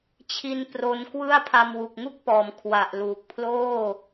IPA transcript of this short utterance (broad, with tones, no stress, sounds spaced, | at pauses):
t͡ɕʰ i˦˥ n p r o˦˥ n k w ɯ˥˩ a̯ pʰ a˧ m w u˨˩ k̚ ŋ u˥˩ k̚ p ɔː˩˦ m kʰ w a˨˩ ʔ l uː˨˩ k̚ pʰ l oː˥˩